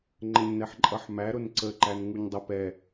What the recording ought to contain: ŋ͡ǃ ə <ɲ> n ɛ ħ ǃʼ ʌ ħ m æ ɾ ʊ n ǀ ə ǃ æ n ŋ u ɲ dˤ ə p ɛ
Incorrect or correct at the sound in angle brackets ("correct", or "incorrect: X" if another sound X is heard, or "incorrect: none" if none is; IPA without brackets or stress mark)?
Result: correct